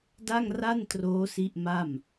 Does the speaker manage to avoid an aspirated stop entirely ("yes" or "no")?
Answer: yes